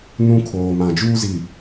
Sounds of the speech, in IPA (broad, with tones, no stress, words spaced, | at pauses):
nũ˦kʰoː˨ mã˨d͡ʒuː˦zi˨